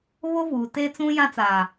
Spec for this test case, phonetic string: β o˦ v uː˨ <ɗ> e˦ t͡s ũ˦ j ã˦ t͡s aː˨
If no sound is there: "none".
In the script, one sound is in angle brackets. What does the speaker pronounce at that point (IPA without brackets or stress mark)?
t